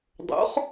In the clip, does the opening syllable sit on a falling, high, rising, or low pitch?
rising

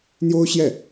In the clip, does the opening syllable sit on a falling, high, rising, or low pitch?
high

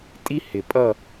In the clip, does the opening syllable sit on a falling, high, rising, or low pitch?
high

